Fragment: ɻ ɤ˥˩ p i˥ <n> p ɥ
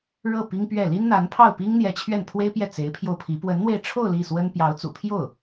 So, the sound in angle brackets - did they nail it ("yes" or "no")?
no